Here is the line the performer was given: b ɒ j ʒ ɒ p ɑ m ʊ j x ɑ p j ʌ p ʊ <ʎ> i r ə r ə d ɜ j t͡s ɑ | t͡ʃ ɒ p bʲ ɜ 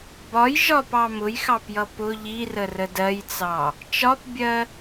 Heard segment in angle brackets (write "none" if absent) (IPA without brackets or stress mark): ʎ